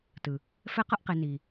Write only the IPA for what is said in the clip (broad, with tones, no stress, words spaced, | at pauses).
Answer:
tɯ˨ | fɛ˦qʌ˦ʔqe˨ ni˨